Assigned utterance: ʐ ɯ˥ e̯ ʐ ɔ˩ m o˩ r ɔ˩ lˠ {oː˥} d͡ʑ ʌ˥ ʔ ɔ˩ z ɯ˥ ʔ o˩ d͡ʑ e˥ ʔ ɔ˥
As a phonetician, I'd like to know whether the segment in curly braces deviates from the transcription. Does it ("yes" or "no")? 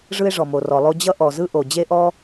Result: yes